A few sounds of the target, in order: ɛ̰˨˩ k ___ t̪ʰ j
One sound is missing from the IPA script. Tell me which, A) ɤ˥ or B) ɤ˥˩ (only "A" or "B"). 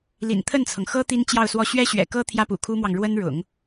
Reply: A